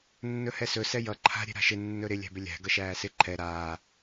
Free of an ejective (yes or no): yes